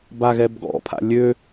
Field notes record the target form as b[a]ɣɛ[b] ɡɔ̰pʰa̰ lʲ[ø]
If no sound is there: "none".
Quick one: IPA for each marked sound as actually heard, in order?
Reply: a, b, ø

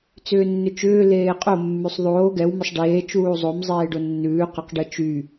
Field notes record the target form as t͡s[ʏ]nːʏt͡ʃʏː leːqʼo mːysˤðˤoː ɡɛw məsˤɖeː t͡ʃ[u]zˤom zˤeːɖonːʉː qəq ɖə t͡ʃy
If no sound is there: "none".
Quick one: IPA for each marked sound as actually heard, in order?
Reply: ʏː, uː

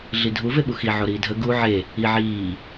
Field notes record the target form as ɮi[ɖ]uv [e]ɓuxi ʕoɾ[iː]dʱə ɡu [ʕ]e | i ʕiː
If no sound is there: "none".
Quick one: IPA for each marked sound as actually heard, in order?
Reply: dʱ, e, iː, ʕ

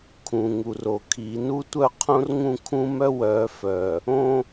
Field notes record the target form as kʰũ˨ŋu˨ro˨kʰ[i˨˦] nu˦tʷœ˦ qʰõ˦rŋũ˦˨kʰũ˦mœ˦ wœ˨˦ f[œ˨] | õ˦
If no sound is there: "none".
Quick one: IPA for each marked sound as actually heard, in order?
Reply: i˨˦, œ˨

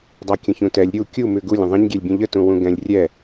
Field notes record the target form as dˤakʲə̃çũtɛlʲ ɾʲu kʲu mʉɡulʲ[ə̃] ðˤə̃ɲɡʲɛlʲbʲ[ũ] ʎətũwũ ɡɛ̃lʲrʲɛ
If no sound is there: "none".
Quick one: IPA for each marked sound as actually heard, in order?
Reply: ə̃, ũ

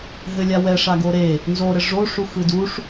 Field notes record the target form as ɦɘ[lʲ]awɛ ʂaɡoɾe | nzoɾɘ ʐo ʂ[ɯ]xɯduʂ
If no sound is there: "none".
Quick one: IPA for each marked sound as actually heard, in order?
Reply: lʲ, u

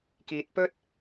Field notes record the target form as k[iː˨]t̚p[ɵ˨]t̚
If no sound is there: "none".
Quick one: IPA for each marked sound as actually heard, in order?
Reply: iː˨, ɵ˥

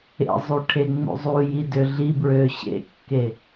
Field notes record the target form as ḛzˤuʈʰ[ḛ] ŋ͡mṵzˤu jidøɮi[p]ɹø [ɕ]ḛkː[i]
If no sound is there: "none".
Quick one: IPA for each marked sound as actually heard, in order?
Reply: e, b, ɕ, e

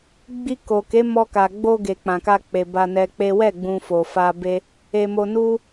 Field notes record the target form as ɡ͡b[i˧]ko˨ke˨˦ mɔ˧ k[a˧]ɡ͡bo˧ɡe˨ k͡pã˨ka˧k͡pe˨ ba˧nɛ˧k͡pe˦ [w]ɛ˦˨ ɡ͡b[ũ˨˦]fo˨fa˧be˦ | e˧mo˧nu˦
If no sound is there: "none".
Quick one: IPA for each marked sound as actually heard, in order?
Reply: i˧, a˨, w, ũ˧

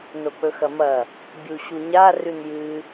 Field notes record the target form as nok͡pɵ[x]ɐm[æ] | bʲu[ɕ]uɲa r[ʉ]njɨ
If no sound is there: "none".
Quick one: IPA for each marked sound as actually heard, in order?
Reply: x, ɐ, ɕ, ʉ

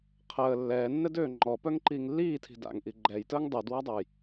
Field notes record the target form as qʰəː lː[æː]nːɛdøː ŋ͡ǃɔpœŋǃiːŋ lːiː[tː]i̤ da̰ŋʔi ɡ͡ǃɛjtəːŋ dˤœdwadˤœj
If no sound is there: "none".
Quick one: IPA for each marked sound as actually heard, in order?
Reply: ɛː, tʰ

